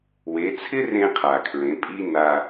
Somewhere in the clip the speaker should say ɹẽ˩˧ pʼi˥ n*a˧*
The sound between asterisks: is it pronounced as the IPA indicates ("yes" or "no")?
yes